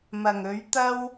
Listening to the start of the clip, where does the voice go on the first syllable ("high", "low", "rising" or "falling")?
low